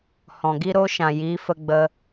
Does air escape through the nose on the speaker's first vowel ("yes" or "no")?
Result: yes